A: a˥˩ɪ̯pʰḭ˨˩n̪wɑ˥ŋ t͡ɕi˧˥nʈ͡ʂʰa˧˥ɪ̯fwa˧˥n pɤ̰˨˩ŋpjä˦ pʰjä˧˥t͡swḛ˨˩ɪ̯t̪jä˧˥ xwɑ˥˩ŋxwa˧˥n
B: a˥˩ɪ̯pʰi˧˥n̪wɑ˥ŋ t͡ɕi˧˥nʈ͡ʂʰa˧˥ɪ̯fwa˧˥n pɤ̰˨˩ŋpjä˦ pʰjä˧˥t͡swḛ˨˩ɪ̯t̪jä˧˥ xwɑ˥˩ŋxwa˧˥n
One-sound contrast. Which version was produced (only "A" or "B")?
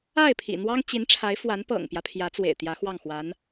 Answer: A